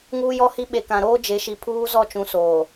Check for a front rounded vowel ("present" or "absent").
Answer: absent